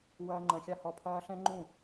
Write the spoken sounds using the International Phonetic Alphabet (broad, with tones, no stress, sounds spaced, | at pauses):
w ɐː˧ ŋ͡ǃ ɐ̃˨ xʲ a˧ h ɔ˨ pʰ ɐː˧ ɬ ɛ̃˦ ŋ͡ǃ ũ˦˨